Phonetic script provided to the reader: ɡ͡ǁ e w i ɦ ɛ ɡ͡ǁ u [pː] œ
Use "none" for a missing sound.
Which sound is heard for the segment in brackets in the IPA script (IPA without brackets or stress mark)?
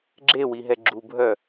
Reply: bʱ